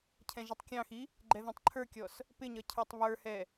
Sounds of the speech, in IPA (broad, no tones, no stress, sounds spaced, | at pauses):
cʰ ɛ̃ ʒ i tˤ kʲ ɑ̃ x i | ɡ͡ǃ ɛ ð ɛ̃ tˤ ǃʰ ə˞ kʲ ɔ s | p ɪ ɲ ʌ cʰ ə˞ tˤ β ə˞ h ɛ